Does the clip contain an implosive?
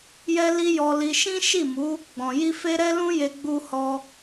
no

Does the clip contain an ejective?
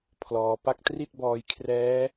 no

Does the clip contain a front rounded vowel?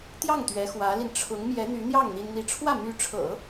yes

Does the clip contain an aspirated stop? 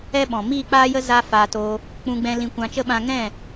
no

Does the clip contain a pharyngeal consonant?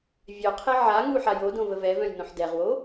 yes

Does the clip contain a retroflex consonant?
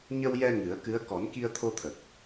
no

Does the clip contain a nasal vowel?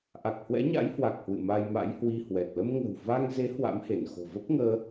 no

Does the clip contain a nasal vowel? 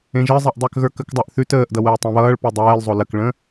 yes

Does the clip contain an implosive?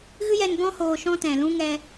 no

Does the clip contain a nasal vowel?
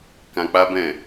yes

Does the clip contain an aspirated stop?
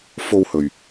no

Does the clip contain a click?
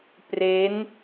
no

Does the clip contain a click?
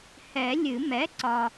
yes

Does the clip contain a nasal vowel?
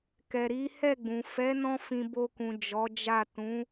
yes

